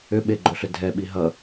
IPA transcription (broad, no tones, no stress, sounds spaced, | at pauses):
ʏ ɓ e ɡ͡ǃ o ɬ ʏ dʱ ɛ ɓ i ɦ ʌ